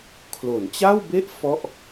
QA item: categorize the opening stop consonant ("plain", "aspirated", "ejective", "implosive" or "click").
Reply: aspirated